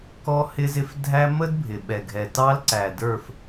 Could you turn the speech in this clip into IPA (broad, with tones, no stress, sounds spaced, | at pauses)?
k ɔ˦ h ɪ˦ z ɪ˦ f dʱ æ˦ m ə˦ d bʱ ɪ˨ ɓ ɛ˨ ɡʱ ɛ˨ t ɑ˦ l ǀ æ˨ d ə˞˦˨ f